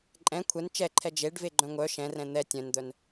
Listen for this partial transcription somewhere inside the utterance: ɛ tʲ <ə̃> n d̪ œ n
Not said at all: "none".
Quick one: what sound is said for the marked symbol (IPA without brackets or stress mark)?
œ̃